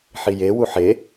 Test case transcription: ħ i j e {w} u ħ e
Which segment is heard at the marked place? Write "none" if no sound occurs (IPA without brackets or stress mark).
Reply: w